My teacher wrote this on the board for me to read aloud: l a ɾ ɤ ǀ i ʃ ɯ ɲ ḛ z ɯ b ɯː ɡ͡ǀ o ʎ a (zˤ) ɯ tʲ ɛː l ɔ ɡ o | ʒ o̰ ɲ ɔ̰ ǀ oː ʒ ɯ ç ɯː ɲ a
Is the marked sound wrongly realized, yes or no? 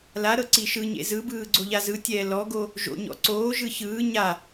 yes